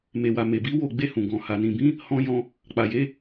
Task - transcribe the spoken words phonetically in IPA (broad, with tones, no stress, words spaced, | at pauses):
me˨wa˨ me˨bi˨˦ wo˦˨ ɡ͡be˧hũ˨ɡɔ̃˨ ha˨nĩ˨bĩ˨˦ | hɔ̃˧jɔ̃˧ | k͡pa˨je˨˦